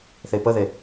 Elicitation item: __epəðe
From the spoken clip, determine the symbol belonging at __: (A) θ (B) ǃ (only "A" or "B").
A